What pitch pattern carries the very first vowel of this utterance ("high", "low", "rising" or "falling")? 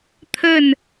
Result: falling